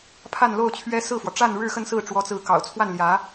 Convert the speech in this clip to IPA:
pʰa˥˧nlo˥˩ʊ̯t͡ɕʰɥɛ˥ sɹ̩˥˩fwɔ˩ ʈ͡ʂa˥˧nɻɻ̩˥˧xə˥˧nsɹ̩˥˩ ʈ͡ʂwɔ˧˥t͡sɹ̩˧˥kɑ̰˨˩ʊ̯t͡sʰwa˥˩n ljä˧˥

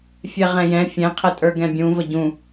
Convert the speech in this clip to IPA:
fʲɛʁɛ̃jɛ̃ fʲɛ̃qʰətʼə˞ ɡɛ̃bʲũ vəɟũ

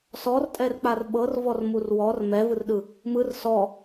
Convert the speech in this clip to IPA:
sɔrtʼɛrk͡par ɓɤr vɔrmurwɔr mɛvɯrɗɯ | mɯr sɔ

